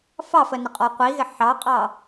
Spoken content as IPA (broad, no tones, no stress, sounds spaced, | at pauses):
f ɑ f ə n ɪ qʼ ɔ qʷ i ɣ ɪ ħ ɑ qʼ ɑ